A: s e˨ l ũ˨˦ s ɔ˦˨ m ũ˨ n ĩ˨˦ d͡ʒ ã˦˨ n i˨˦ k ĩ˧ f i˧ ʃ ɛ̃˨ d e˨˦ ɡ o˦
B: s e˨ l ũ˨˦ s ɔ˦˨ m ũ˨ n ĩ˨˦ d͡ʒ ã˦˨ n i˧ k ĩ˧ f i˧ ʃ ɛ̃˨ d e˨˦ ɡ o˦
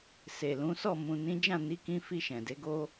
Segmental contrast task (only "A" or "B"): A